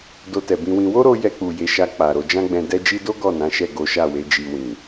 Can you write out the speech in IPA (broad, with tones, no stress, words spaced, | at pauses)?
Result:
do˧tɛ˨bĩ˧wĩ˧ wo˦ɾo˧ jɛ˧k͡pu˨ je˨˦ʃa˧ k͡pa˨ɾo˨˦ d͡ʒã˦ɡ͡bɛ̃˧dɛ˦ d͡ʒi˦ do˦ ɡɔ˦˨nã˨˦ʃɛ˦˨ ɡo˨˦ʃa˦˨we˨˦ d͡ʒi˧wĩ˨